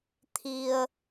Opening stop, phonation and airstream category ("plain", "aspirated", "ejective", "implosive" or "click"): aspirated